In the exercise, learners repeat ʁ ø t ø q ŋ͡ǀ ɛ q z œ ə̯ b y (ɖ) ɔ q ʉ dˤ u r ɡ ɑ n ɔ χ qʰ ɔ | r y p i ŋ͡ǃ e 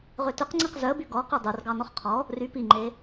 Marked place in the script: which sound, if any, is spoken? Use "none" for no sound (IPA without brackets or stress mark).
ɡ